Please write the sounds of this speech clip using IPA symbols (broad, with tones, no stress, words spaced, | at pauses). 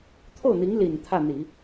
t̪ʰo˥˩ʊ̯n̪i˧˥ŋ li˨˩n t̪ʰä˥˩n̪i˨˩˦